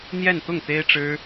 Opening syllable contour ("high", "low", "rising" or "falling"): falling